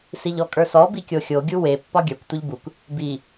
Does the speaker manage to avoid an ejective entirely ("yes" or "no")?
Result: no